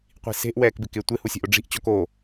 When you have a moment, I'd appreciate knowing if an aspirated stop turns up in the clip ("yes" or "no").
no